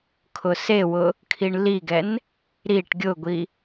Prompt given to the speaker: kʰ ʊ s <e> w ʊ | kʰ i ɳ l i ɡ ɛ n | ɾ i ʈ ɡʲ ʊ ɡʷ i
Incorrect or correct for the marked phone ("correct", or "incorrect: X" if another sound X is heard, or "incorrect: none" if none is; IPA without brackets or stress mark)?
correct